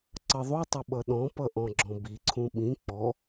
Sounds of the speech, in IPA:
ǀʌðˤutˤʌ ɓʌɗɔ̃pʌ ʔɔ̃ɡ͡ǁɔ̃biǀʰũ ɓĩ k͡pɔ

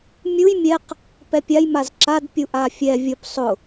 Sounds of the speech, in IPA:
mʲuj mʲɛq | pɛpʲaj mazǁad pʲuʔafʲɛ vʲʊp sˤʊ

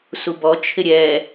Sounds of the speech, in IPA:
subɔ t͡ʃʰɪɾʲɛ

